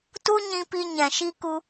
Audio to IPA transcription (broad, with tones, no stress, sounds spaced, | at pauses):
t u˦ ɲ ĩ˧ p i˧ ɲ ɛ̃˨ ʃ i˧ k u˧